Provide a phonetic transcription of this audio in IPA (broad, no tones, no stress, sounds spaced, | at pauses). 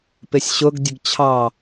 p ɪ sʲ ɕ ʊ ɡ dʲ ə ɡ t͡ɕʰ ɑ